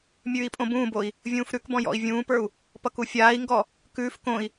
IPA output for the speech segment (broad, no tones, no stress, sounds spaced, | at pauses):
mʲ ʉː i̯ pʼ õ b ũː b o i̯ | vʲ ũː f ɾ ʉ k b ɔ̃ j ɔ̰ i̯ vʲ ũː p ə˞ u̯ | p ʌ k u fʲ aː i̯ ŋ ɡ ɔ | k ʉː f k õ i̯